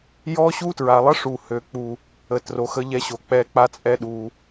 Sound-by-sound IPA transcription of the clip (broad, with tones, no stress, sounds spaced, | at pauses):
j ɔ˦ ɕ u˦ t ɹ a˨ lˠ ə˦ ʂ u˨ h ø˨ k͡p u˨ | ə˨ t r o˨ x ə˦ ʎ ɛ˦ ɕ o˨ k͡p ɛ˦˨ k͡p a˦ t͡sʼ ɛ˦ ɗ u˨